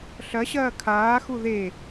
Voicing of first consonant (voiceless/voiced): voiceless